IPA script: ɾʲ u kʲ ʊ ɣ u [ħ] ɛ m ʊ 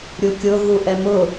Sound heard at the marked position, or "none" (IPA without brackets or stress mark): ʔ